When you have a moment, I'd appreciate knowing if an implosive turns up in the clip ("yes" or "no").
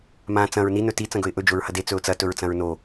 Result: no